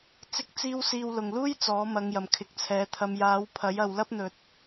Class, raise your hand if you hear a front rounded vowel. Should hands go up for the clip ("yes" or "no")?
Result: no